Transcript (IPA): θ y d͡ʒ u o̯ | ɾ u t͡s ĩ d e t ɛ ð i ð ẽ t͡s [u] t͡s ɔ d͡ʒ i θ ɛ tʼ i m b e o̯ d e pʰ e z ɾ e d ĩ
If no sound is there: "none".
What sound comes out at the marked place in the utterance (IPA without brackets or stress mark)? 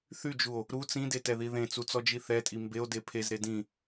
u